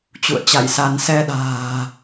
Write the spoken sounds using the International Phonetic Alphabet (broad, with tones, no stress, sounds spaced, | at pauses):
t͡ɕ ṵ˧˨ ə̯ t͡ɕ a̰˧˨ j s a˧ n s ɛ˧ ɗ a̤ː˨˩